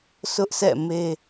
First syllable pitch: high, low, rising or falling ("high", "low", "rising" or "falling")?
high